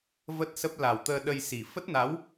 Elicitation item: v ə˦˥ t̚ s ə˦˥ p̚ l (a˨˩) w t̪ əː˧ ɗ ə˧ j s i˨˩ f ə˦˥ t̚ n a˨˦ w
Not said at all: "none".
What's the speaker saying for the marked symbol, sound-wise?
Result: a˨˩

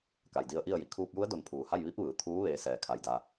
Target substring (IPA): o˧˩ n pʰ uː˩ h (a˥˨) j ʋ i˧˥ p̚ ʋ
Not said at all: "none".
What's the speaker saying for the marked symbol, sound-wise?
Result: a˥˨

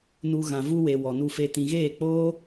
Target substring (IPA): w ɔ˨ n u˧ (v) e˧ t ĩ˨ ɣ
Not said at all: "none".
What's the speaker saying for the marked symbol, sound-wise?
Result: f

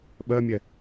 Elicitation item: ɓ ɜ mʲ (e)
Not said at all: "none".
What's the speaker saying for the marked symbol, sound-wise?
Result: ɛ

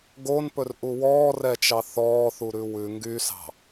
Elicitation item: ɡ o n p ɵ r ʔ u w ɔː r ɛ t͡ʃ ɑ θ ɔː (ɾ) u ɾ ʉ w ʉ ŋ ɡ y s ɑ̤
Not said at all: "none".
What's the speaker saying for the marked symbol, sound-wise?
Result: θ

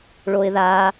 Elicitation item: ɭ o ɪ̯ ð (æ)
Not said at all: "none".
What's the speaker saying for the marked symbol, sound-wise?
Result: a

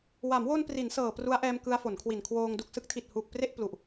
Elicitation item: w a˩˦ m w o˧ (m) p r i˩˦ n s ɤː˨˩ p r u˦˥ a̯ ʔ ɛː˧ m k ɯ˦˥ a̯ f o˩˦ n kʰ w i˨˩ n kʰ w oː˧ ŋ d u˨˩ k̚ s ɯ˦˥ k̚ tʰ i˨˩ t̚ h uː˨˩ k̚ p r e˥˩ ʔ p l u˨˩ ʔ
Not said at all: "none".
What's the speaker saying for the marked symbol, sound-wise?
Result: n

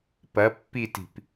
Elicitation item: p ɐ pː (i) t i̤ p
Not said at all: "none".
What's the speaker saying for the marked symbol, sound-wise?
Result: i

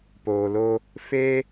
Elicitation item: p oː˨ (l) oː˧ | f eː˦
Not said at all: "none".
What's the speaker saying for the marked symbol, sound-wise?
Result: l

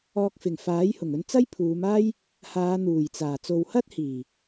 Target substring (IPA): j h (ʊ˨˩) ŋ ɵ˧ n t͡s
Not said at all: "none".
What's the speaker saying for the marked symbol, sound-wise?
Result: ʊ˨˩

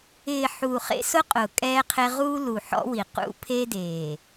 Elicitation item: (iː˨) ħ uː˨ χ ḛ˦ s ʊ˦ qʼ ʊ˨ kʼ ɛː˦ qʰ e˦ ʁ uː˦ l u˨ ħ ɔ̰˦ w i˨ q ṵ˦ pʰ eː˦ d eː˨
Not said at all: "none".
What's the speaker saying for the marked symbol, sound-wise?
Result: ɪː˨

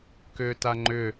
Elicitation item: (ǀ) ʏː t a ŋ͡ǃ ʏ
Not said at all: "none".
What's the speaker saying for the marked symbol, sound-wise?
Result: k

